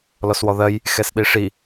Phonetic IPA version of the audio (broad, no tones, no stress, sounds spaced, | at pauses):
l ɔ s w ɔ ð ɜ j | x ɛ s ɗ i ʂ i